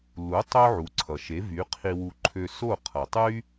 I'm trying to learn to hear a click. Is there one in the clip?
yes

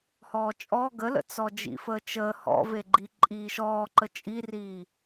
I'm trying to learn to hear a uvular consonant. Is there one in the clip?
no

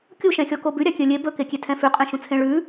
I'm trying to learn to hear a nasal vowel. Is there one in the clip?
yes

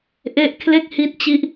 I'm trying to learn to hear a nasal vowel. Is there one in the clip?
no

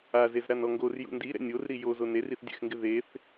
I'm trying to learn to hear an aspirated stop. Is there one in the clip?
no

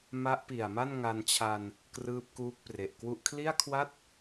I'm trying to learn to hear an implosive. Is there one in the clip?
no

